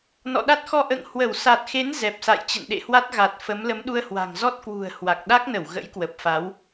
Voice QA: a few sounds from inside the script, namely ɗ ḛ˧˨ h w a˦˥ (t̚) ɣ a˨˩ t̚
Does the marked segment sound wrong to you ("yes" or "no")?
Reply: no